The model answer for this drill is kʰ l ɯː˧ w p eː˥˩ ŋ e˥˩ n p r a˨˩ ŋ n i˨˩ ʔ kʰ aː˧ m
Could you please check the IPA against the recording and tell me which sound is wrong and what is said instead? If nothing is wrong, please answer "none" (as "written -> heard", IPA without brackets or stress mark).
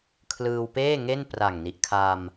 none